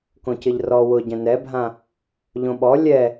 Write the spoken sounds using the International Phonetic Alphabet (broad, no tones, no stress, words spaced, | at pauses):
kõcɪʎrɔ wʊɟɛ̃ nɛbʱã | ʎõɓɔ lʲɛ